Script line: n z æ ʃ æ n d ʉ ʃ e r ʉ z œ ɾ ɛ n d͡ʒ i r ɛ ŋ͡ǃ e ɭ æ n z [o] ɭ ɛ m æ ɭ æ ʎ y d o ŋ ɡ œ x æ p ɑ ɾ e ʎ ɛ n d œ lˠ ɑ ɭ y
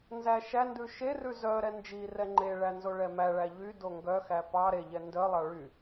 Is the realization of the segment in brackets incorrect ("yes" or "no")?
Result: no